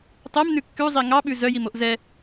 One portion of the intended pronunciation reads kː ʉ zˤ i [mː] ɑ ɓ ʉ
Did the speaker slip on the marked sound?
yes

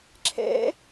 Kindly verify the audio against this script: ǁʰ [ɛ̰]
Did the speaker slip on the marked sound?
no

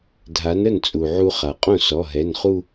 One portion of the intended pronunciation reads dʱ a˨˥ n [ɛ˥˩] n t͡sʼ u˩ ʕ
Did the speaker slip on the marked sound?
yes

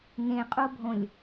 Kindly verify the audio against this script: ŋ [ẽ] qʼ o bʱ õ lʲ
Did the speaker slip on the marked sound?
no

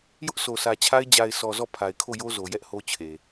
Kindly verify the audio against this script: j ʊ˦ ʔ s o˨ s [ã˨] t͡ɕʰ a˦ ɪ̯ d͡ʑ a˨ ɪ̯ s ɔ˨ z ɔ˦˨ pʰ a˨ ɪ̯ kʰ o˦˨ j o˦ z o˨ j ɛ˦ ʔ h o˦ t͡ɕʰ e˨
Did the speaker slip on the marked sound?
yes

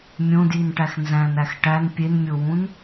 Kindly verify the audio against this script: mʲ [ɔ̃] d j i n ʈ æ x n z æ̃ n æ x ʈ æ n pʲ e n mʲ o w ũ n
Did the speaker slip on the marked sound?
yes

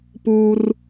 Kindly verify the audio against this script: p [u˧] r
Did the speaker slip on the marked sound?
no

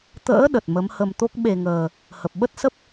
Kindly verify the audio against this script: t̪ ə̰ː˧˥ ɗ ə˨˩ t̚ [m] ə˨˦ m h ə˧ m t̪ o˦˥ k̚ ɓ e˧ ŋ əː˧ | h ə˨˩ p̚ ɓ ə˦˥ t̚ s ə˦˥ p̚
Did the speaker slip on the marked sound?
no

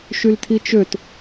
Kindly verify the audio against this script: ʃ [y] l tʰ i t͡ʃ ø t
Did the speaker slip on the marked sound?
no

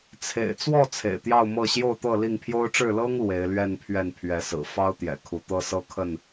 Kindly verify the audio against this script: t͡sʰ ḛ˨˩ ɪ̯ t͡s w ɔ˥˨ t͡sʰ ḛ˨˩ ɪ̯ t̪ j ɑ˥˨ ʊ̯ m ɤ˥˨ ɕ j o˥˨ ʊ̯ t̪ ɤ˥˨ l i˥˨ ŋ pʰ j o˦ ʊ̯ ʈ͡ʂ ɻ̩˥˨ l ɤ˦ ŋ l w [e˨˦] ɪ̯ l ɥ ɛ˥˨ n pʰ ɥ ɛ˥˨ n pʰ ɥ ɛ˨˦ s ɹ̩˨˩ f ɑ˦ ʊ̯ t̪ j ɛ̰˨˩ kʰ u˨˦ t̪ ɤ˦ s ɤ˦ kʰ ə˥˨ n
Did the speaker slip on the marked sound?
no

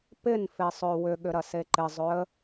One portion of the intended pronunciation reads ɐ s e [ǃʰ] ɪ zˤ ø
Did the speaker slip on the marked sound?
yes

